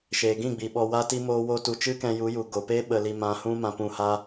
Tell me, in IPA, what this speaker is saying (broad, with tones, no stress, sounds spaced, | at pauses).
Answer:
ʃ eː˨ ɡ ĩ˦˨ ɡ͡b i˨ ɓ ɔ˧ w a˦ t i˦ m oː˦ w o˦ t u˧ t͡ʃ ɨ˦ k ɛ̃˧ j u˨˦ j u˨ ɡ o˨ p e˦ ɓ ə˧ l i˧ m ã˧ h ũ˦ m ã˧ p ũ˧ h a˦